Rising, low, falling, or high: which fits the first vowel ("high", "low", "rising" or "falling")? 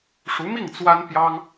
rising